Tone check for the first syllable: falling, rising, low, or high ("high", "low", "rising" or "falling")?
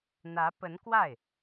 rising